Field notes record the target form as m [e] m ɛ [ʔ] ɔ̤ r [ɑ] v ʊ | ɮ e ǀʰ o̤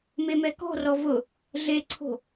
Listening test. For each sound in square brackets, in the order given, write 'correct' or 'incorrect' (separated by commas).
correct, incorrect, incorrect